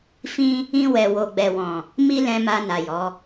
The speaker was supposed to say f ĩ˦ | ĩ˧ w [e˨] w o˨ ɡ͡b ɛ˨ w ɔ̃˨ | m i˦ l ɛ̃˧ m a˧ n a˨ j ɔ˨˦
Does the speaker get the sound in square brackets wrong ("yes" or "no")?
yes